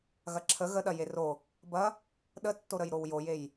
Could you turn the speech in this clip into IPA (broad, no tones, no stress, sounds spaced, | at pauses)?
ɣ ɐ ǁʰ ə ɣ ə ɗ ɐ j e r o | b ɐ | ɗ ə tː o ɾ ə j ɾ o w j o j e j